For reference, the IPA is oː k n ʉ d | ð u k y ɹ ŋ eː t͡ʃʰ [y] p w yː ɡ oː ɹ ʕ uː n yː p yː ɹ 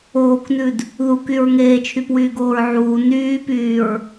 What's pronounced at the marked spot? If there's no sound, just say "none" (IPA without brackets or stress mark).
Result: y